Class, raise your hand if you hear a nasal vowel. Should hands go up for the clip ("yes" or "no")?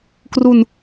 no